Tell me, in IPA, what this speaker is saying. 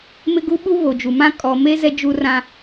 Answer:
mɪ˦ɡu˦ɓu˦ βo˨d͡ʒu˨mã˦ kʼɔ˨me˦ zɛ˦d͡ʒu˦rã˦

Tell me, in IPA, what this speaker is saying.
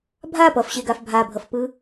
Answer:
bʱa pʌfɕeɡaf bʱabʱʌfpɯ

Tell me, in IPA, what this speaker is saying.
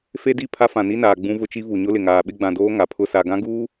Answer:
fe˦di˦˨pʰa˦ fã˨ni˦naː˨ ɡ͡bũ˦vʊ˦t͡ʃi˦vu˨ ɲʊ˦lɪ˨ŋaː˨ ɓɪ˦ɡ͡bã˨doː˦ ŋa˨pʰʊ˦ sa˨ɡã˦ɡuː˦

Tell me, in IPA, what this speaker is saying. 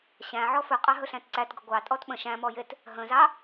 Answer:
ɕæ̃ʕɔ fɵqʼɑ ɦɵɬæ̃tǀætɡə ɡʷɑ tʼɔtɓə̃ ʃæ̃mɔjet | ɦə̃zɑ

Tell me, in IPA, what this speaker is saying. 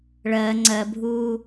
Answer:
ɭɜ ŋ͡ǀɜbʱuː

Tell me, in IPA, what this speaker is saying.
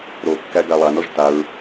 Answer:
ɾokːæ ɡalˠanɔʒ taɹ

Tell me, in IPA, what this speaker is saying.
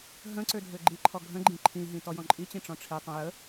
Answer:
ɦə̃ ǀødʱøɡ͡ǃiǃʰɔ ɡʱə̃ɡ͡ǃĩ ǃʰĩɦĩ tɔjɔ̃ǃʼit͡ɕĩ ʈ͡ʂɔ̃ʈ͡ʂʰitˤə̃ jə

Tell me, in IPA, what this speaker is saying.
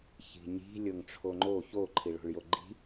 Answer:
çi̤ɲi̤ lʲoŋʈ͡ʂʰoŋ͡ǃo ço ǃʰiɭo̤ɭjoɡ͡ǃi̤

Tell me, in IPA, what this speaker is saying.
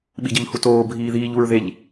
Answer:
ɓiɟʌʎhutoː bʱiːðiːʎ uɹðeʎ

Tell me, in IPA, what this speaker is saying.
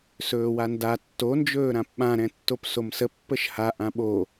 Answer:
sɵːwanda tːond͡ʒɵː ɾãpɓãɾɛ̃tːop somsə pːəʃha ʔãɓo

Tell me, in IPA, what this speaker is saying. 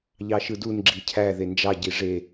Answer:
ʎɑʃɯdun ɡ͡ǁicʰæ ðend͡ʒɑ ɟiʐe

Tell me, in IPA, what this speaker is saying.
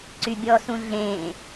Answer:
ǀybʲɔsũ ɮẽ

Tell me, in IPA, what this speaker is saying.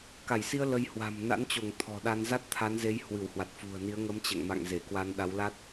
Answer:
ka˧˩jsi˧ə̯ lə˧jhwa̤˨˩m na̰˧˥nt͡ɕo˧˩ŋ t̪ʰɔ̤˨˩ɗa˧n za˦˥t̚t̪ʰa˨˦nze˨˦jhwɨ˧˩w hwa˨˩t̚fṳ˨˩ə̯ni˨˦ə̯ ŋə˨˦mt͡ɕɛ̰˧˨ŋma̰˧˨ŋze˧˩ kwa˧nɗa˨˦wla˦˥t̚

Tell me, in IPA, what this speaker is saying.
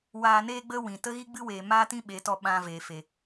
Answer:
waː˧neː˦ɡ͡bə˦wĩ˨ tə˦ɣi˦ɡ͡bɨ˦weː˨ maː˦tĩ˦ɓe˨˦tɔ˧ ɓã˧ veː˨fe˨

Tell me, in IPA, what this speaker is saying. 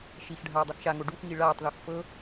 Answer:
ʃixɖʱaː dˤɯxʃaŋo ɖuxŋi ɭaːtˤðox fɤ

